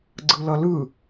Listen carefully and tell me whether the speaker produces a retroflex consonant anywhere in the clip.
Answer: no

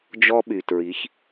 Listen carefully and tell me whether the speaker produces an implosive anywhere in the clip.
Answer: yes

